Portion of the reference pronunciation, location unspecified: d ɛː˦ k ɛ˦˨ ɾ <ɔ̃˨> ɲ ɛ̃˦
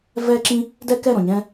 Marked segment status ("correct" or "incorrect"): correct